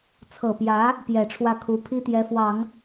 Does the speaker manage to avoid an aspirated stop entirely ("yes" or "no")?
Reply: no